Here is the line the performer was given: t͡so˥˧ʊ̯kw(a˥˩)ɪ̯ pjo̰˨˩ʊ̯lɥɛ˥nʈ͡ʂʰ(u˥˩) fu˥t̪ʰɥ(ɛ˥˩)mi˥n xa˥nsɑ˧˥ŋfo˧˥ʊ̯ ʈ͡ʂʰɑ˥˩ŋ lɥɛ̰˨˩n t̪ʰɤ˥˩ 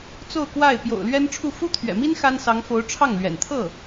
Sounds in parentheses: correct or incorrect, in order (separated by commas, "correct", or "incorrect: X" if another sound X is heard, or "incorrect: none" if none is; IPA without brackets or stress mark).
correct, correct, incorrect: ɛ̰˨˩